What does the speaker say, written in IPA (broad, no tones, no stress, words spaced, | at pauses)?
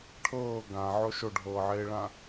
ʈʰɤː ɡãʕo ʃoɖʱɤːʕeːɭã